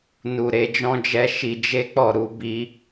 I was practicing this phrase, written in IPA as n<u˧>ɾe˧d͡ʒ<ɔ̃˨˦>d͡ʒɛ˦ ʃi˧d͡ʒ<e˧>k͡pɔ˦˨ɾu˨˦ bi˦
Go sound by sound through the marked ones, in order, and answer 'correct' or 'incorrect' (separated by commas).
correct, incorrect, incorrect